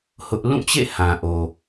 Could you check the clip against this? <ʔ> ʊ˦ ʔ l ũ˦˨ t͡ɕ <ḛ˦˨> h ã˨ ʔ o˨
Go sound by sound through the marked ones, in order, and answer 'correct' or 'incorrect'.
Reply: incorrect: h, correct

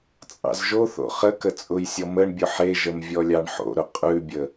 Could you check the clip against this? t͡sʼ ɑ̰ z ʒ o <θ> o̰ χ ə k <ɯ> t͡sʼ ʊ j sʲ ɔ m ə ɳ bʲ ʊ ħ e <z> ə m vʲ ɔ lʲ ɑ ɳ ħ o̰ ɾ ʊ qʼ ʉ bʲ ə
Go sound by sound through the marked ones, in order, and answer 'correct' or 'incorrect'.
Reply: correct, incorrect: ə, incorrect: ʒ

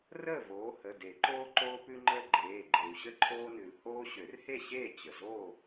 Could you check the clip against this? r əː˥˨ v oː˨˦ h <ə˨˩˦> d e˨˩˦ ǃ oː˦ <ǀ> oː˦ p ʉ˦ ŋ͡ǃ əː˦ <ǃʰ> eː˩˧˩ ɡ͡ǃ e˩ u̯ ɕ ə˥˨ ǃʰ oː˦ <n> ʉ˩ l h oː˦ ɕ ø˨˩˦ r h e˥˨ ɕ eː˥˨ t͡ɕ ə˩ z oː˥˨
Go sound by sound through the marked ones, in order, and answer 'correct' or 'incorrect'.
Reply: incorrect: ə˩˧˩, incorrect: ǃ, incorrect: ɡ͡ǃ, correct

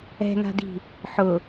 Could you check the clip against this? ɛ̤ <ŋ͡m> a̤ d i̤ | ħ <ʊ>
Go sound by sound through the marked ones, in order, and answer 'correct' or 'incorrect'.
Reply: incorrect: ŋ, correct

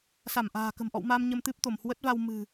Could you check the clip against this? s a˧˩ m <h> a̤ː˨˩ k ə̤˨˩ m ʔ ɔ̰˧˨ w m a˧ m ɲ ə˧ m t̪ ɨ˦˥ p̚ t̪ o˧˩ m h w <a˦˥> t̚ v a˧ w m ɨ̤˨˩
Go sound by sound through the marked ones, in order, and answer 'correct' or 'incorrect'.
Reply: incorrect: ʔ, incorrect: ə˦˥

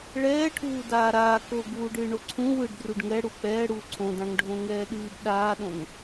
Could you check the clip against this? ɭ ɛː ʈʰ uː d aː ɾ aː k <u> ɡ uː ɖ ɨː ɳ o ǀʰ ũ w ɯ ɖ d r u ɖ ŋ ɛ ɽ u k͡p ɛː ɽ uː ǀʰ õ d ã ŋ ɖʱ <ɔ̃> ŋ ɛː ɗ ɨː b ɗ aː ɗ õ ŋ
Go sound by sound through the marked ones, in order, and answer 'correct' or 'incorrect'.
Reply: incorrect: o, incorrect: õ

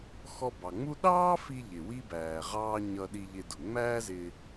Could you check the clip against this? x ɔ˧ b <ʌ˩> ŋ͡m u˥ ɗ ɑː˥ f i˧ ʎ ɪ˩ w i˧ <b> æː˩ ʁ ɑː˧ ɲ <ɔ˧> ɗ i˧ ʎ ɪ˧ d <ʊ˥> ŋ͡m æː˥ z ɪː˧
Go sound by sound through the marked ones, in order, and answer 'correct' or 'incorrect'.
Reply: incorrect: ɑ˩, correct, incorrect: ʌ˧, incorrect: ʊ˩

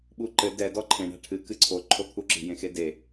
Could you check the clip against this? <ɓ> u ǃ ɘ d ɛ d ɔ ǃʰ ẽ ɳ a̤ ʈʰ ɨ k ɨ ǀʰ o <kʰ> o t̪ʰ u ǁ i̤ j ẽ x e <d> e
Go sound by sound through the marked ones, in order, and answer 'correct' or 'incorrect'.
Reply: correct, incorrect: ǃʰ, correct

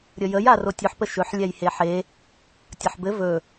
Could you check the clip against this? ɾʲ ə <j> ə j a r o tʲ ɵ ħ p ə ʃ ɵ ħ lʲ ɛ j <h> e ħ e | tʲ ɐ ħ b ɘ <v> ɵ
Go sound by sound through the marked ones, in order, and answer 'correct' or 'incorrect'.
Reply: correct, correct, correct

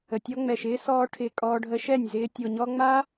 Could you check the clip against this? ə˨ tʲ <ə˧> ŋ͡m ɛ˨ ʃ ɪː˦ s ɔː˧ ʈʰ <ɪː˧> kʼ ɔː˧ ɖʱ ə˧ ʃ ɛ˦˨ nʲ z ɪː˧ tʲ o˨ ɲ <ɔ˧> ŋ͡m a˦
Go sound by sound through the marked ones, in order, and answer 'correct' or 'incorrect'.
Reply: incorrect: ɔ˧, correct, correct

